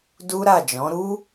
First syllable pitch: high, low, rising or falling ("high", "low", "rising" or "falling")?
high